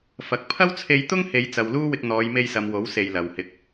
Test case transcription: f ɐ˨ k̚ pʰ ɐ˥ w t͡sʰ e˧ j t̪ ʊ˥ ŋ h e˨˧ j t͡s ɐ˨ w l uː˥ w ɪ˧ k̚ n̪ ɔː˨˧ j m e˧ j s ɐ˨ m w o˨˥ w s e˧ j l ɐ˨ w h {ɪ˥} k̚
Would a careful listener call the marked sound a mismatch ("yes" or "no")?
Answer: yes